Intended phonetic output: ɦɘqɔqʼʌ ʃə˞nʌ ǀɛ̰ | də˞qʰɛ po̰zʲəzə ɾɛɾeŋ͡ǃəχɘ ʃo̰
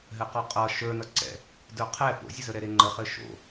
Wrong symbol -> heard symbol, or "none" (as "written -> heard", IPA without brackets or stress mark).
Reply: none